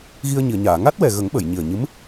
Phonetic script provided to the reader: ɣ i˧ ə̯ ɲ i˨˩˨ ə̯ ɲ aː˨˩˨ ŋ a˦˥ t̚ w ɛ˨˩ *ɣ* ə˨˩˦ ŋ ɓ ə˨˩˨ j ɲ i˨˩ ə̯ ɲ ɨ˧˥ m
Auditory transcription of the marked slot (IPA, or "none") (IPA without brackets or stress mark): ɣ